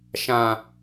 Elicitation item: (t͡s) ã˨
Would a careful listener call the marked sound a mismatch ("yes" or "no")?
yes